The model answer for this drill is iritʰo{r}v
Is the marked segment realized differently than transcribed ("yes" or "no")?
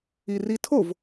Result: yes